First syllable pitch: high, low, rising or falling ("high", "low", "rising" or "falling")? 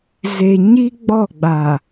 low